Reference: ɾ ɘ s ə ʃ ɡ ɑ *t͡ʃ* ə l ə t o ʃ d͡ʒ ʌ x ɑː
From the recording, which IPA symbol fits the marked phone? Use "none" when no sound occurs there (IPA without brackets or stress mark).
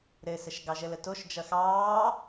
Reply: ʒ